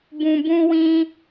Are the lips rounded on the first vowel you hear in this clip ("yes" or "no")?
yes